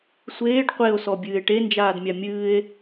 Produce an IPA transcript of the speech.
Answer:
sʷ eː ɖ qʷ e o̯ s ɔ bʲ ɨː e̯ ʈ e n d͡ʒ aː d mʲ a mʲ ɨː e̯

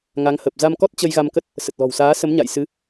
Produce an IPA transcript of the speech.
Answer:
ŋ a˨˦ ŋ h ə˨˩ p̚ z a˧ m k ɔ˦˥ t̚ t͡ɕ ə˧ j ɣ a˧ m k ə˦˥ t̚ | s ə˨˩ t̚ l ɔ̤˨˩ w s aː˨˦ s ə˨˦ m ɲ a̰˧˨ j s ɨ˨˦

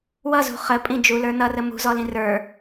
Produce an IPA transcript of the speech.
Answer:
w ʌ z ṳ χ ə pʼ ĩ d͡ʒ u l ə˞ n ʌ r ə m ṳ z ɔ l ĩ r ə˞

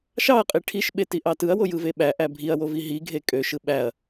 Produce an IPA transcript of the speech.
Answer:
ʃ ɑ ɐ̯ qʼ i ʈʰ i ʃ ɓ e t i ʔ ɑ t ɯ ɐ̯ w o j ɯ v e ɓ æ ʔ æ bʱ i ɐ̯ w o v i ɦ i ɡʱ e kʼ ø ʃ ɯ ɓ æ ɐ̯

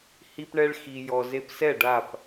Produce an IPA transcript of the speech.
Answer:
h i˧ p ɳ ɛ˧ ɭ x i˨ j ɔ˨ z e˧ p s ɛ˦˨ ɖ a˦˨ p

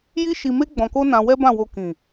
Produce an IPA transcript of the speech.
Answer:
j i˦ ʃ i˧ m e˦ ɡ͡b ɔ̃˧ k o˦ n ã˧ w ɛ˦ b ã˦˨ w o˧ k ĩ˨

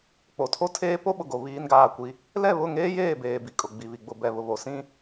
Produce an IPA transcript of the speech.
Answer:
k͡p o˨ tʰ o˦ tʰ eː˦ p o˦ ɓ ʊ˨ ɡ o˨ β iː˦ n ɡ aː˦˨ kʷ i˦ | l ɛ˦˨ β ʊ˦˨ ŋ eː˦ j eː˦˨ b eː˨ b i˨ kʼ ʊ˨ ɡ͡b i˨ β i˨ ɡ͡b ʊ˨ b ɛ˨ β ʊ˨ β o˨ s ĩ˦

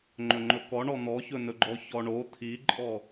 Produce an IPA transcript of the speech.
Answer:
ŋ͡ǃ ɵ ŋ͡ǃ ɵ k ɔ ɳ ɔ n̪ ɔ ç ɵ n ɵ ɡ͡ǃ ɔ ç ɔ ɳ o t̪ʰ i ǃʼ ɔ

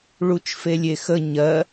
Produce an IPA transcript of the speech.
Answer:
ɭ u t͡ʃ f e lʲ e x ə ɲ ɜ

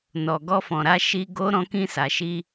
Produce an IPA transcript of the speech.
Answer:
n ɔ˨ ɡ ɔ˧ f ɔ̃˨ ɾ a˧ ʃ i˧ ɡ o˦ ɾ ɔ̃˧ k ĩ˧ s a˨ ʃ i˧

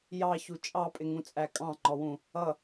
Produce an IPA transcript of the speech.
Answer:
j ɑ ç u t͡ʃʼ ɑ pʼ ɪ ŋ ũ t͡sʼ æ kʼ ɑ̃ ŋ͡ǃ ɔ w ũ | ʌ

